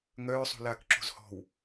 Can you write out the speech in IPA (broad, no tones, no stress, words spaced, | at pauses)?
ŋœːsˤṳlaːk ǁṳzhɔ̤w